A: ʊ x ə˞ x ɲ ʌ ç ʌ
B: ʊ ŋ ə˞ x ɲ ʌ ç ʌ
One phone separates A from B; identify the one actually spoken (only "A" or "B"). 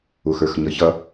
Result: A